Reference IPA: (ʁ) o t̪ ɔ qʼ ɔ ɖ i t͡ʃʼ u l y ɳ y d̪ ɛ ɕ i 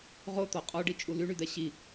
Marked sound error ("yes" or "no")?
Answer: no